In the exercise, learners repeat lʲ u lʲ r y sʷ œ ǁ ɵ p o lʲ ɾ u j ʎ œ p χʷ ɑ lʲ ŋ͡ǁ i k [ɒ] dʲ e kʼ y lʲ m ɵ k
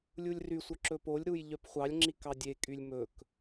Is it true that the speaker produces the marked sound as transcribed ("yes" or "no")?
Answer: no